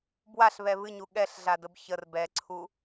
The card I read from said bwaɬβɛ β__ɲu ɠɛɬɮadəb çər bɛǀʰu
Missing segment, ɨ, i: ɨ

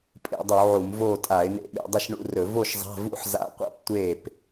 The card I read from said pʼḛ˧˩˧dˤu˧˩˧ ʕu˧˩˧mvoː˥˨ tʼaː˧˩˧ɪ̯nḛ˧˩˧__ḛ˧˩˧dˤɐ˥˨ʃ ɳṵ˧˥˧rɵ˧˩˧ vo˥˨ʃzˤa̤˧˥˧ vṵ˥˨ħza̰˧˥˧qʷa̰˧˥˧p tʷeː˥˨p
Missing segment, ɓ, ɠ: ɓ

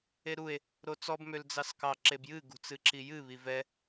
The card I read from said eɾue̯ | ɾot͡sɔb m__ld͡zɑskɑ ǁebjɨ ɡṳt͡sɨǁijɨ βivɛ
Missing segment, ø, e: ø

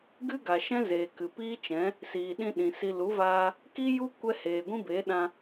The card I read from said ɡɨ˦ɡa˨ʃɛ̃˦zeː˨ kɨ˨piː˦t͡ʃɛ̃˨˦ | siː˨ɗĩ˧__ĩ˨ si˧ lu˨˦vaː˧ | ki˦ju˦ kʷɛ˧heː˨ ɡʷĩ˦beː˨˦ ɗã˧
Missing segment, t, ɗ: ɗ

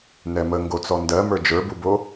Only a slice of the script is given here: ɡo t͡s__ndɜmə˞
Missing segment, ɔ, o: ɔ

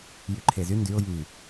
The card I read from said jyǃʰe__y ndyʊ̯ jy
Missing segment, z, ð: z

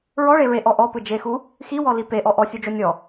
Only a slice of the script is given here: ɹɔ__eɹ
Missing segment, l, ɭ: ɭ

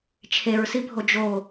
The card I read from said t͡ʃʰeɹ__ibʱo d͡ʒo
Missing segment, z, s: s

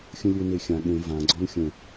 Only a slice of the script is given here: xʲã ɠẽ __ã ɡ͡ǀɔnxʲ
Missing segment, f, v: v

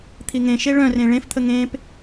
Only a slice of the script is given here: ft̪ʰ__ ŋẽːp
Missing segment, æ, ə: ə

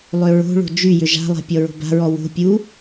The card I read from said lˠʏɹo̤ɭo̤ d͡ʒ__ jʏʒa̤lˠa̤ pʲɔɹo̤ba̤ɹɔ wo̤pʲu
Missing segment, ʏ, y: y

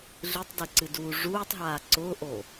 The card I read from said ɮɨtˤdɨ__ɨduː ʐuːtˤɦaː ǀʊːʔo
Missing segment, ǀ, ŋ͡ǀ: ǀ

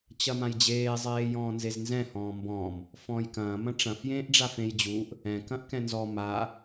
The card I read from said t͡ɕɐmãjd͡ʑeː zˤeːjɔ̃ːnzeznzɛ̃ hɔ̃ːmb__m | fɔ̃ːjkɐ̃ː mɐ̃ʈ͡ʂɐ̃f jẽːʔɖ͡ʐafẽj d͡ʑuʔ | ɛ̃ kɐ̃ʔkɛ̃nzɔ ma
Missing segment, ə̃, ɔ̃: ɔ̃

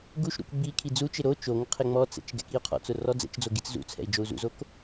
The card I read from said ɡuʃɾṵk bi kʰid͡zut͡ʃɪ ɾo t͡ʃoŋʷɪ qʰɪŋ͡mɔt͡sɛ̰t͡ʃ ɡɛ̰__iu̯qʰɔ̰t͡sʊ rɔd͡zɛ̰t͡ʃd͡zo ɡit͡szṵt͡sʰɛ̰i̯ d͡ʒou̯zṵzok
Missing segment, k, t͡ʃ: k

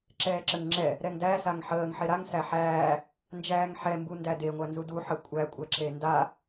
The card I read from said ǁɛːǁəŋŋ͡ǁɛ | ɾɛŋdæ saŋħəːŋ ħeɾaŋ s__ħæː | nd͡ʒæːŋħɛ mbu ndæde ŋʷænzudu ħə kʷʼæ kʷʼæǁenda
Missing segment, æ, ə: æ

